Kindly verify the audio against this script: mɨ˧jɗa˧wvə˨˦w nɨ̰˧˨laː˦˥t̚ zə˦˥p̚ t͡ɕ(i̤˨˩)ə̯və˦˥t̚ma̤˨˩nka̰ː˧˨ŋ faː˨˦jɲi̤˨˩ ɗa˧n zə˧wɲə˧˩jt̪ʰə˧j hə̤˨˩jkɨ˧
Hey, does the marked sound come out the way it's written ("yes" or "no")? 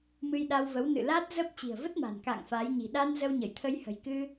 yes